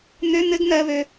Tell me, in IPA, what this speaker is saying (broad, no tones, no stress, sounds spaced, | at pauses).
n̪ ø n̪ ɘ ɡ n̪ ɜ β ø